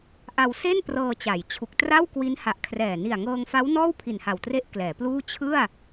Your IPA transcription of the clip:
ʔ a˧ w s e˥˩ n p r ɤː˧ t͡ɕ a˩˦ j t͡ɕʰ u˨˩ k̚ t r a˥˩ w k w i˦˥ n h a˨˩ ʔ kʰ r ɛː˨˩ n i˨˩ a̯ ŋ ɤː˧ ŋ f a˦˥ w n ɔː˥˩ w pʰ i˨˩ n h a˨˩ w t r e˦˥ ʔ k l ɛː˩˦ p l uː˥˩ t͡ɕʰ ɯ˥˩ a̯

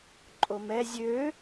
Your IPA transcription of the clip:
ǃʼ o m ɛ zʲ ø

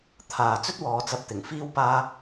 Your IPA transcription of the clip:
t̪ʰ aː˨ t͡s ɵ˥ t̚ w ɔː˨ t͡s ɐ˨ p̚ t̪ ɪ˨˩ ŋ f iː˥ w p aː˥

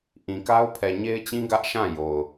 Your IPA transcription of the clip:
ʔ ĩ˨ k a˦ ʊ̯ pʰ ɛ˨ ɲ e˦ ɪ̯ t͡ɕ ĩ˦ ɡ ä˦ ʔ ʃ ã˦˨ j o˨ ʊ̯

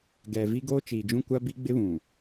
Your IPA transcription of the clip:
ɡ ɛ˨ v i˦ ɡ oː˦ t͡ʃ iː˨ d͡ʒ ũ˦ kʷ a˦ b i˦ ɡ͡b ɪ˦ β ũ˨

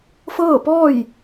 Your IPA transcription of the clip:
f ɤː˥˨ p ɔː˥˨ j

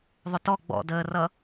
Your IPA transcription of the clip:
ðˤ ʊ t ɔ ɡ͡b ɔ̰ d əː r ʌ

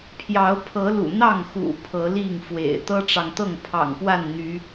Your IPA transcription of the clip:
pʰ j ɑ˨˦ ʊ̯ pʰ ɤ˨˦ l ṵ˨˩ n̪ ɑ˥˨ ŋ x ṵ˨˩ pʰ ɤ˨˦ l i˥˨ ŋ f w ḛ˨˩ ɪ̯ t̪ ɤ˦ ʈ͡ʂ ɑ˨ ŋ t̪ ɤ˥˨ ŋ pʰ ɑ̰˨˩ ŋ p w a˥˨ n n̪ y˨˦

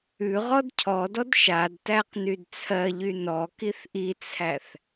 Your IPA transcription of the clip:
ʉ ʁ ɔ d cʰ ɔ d ɔ d ʃ a d t æ q n y d t͡sʰ ɜ ʎ y n ɔ k i θ ʔ i t͡sʰ æ θ

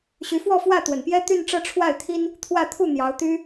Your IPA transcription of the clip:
ɕ y˧˥ f w ɔ˥˧ f w ä˥˩ t̪ w ə˨˩ n p j ɛ˥ t̪ y˥˧ n ʈ͡ʂ ɤ˥˧ ʈ͡ʂʰ w a˥˩ ɪ̯ t̪ʰ i˥ n | t̪ʰ w ä˥˧ t̪ʰ u˥˩ n̪ j ɑ˧˥ ʊ̯ t̪ y˥

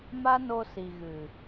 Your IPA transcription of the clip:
m a˦ n o˧ s i˨ ɣ ɨ˨

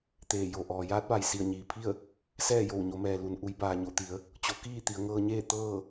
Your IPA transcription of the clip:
t̪ eː˧˩ j o˧˩ ʔ ɔː˩ j aː˧˥ t̚ ʋ a˩ j s i˧˩ ə̯ ɲ iː˩ pʰ i˥˨ ə̯ | s ɛː˥˨ j o˧˩ w ɲ o˩˧ m ɛː˩ l u˩ n ʔ u˩˧ j b aː˩ ɲ o˩˧ t̪ i˩˧ ə̯ | t͡ɕ o˩˧ k iː˥˨ t̪ i˩˧ ə̯ ŋ ɤː˧ ɲ eː˥˨ t̪ ɤː˥˨

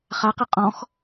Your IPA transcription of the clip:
χ a q ɘ qʼ ɔ̃ x

